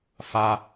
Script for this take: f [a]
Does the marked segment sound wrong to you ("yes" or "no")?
no